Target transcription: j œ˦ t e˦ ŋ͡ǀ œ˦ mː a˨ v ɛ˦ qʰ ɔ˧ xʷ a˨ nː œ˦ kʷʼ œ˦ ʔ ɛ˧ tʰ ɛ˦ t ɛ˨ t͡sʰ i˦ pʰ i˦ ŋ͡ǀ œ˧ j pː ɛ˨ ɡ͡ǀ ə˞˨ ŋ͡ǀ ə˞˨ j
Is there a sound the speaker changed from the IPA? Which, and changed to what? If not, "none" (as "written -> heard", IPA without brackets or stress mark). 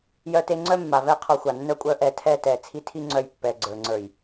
pʰ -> tʰ